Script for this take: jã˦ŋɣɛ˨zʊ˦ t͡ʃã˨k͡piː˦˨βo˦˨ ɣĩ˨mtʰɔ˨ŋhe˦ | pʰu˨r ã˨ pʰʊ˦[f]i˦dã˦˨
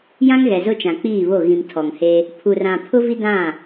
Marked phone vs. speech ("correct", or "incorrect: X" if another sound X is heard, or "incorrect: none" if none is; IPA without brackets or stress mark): incorrect: v